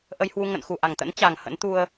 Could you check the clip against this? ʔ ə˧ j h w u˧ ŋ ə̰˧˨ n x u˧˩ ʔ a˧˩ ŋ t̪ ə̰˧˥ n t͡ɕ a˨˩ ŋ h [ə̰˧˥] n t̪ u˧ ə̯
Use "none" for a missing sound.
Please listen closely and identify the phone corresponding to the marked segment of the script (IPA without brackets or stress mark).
ə̰˧˥